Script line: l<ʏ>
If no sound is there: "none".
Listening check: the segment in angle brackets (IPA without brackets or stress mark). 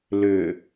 ʏ